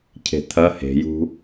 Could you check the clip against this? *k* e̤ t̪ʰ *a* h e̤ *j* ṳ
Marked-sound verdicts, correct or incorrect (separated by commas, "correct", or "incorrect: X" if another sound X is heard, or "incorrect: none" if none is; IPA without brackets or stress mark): incorrect: cʰ, incorrect: ɐ, correct